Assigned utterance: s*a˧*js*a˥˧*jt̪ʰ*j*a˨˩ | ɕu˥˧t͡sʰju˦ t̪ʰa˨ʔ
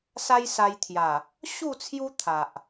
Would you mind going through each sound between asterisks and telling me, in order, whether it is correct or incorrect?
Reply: incorrect: a˦, incorrect: a˧, correct

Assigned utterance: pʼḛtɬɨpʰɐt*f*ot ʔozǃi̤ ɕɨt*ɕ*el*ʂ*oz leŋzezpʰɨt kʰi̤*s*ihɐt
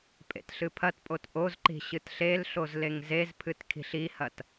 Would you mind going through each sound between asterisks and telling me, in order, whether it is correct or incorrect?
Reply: incorrect: pʼ, incorrect: ɬ, incorrect: ɬ, incorrect: ɬ

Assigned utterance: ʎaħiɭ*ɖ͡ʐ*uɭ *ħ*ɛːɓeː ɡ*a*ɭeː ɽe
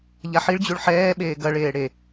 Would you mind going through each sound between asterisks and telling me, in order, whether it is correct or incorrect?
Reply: incorrect: d͡ʑ, correct, incorrect: ɐ

